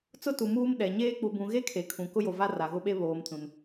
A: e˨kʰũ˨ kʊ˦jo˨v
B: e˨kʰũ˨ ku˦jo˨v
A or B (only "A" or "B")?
A